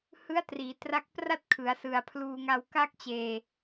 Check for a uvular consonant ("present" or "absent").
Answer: absent